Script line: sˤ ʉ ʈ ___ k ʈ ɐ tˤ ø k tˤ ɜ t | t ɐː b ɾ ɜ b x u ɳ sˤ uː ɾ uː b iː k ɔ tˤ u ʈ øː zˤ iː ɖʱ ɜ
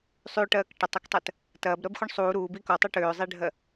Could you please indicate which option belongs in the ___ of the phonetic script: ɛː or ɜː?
ɜː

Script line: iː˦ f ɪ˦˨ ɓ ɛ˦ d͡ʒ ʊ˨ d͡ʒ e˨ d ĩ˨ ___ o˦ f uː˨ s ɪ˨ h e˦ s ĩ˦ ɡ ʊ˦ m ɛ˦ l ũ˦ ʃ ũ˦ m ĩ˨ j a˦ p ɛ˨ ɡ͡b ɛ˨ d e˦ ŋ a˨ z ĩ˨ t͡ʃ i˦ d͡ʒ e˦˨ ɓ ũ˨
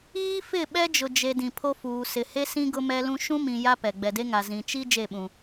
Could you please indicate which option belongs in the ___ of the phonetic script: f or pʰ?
pʰ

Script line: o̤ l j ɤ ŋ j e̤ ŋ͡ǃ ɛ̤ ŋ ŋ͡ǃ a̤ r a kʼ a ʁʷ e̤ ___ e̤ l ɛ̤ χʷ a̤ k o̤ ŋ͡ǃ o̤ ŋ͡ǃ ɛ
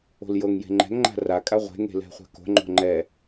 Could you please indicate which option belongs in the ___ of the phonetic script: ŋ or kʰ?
ŋ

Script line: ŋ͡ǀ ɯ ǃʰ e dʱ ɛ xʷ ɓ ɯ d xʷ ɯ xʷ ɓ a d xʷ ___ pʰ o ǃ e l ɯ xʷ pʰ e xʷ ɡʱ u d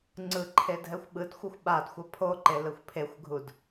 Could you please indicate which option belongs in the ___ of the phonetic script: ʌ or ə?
ʌ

